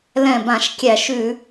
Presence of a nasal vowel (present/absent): present